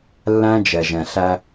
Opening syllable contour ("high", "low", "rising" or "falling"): high